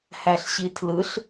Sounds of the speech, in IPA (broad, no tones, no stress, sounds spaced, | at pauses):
h æ ɬ ɕ i tʰ l ɯ ɬ